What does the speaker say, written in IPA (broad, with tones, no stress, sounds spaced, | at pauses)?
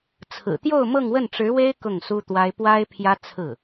t͡sʰ ɹ̩˨˩ t̪ j o˥˧ ʊ̯ m ɤ˥˧ ŋ w ə˥˩ n ʈ͡ʂ ɻ̩˧˥ w e˥ ɪ̯ k ʊ˥˩ ŋ s u˥ t̪ w a˥ ɪ̯ p w a˥ ɪ̯ pʰ j ä˥ t͡sʰ ɹ̩˥˩